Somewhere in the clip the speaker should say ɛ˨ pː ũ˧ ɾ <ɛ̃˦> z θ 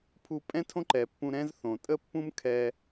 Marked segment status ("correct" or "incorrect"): correct